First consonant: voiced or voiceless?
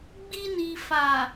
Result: voiced